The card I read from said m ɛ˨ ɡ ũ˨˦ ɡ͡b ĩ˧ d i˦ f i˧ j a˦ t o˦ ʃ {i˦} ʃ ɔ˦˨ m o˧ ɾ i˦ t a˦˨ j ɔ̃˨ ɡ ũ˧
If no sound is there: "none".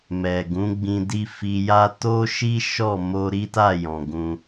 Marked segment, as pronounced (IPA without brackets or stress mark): i˦